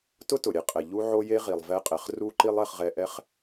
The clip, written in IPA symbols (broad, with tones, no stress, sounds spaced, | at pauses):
t ʊ˦ t ʊ˨ ɾʲ e˧ qʼ ɛ˨ ʎ u˦ ʕ o˦ j e˦ ʁ i˨ lˠ v ɛ˧ qʼ ɛ˨ χ r u˧ ǃ i˦ lˠ ɛ˧ χ ʁ ɛ˧ ʔ ɛ˦ χ